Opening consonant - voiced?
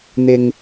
yes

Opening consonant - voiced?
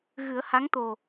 yes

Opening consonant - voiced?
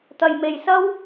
no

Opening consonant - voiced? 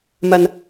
yes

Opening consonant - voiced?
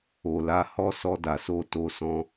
yes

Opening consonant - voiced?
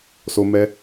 no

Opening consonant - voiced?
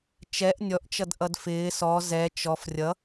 no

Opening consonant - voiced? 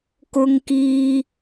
no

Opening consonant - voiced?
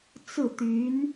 no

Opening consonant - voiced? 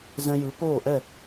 yes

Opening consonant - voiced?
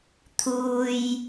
no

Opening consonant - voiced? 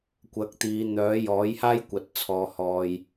no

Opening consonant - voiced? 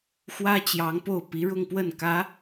no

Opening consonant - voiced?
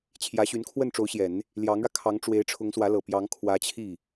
no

